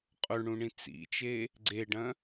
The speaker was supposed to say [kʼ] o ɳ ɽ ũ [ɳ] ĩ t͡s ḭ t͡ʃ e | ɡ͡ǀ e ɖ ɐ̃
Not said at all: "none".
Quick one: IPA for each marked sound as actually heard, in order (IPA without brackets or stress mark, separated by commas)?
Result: qʼ, ɳ